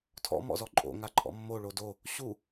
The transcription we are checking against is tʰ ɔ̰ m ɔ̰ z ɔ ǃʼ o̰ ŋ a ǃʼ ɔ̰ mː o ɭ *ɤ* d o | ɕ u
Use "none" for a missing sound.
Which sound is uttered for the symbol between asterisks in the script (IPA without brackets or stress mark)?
o